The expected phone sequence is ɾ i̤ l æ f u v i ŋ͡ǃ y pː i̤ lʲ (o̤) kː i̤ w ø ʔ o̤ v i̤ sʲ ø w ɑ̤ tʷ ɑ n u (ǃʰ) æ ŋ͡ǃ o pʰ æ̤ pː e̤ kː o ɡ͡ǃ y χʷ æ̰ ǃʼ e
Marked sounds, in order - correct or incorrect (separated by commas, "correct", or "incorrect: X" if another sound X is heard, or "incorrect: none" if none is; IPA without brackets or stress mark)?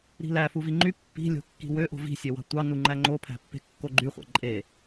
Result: correct, incorrect: ŋ͡ǃ